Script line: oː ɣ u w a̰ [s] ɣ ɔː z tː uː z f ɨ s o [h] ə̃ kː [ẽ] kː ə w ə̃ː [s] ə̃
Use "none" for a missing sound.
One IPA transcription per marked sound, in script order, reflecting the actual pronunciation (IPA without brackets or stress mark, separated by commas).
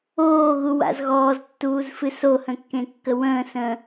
z, h, ẽ, s